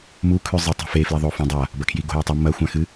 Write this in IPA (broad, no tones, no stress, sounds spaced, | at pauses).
m u kʰ ʉ zˤ i tˤ e̤ f e f l i ðˤ o f ũ dˤ a | b ɐ kʰ j i ɡ o̤ j a tˤ i m ɐ xʷ ã x ɨ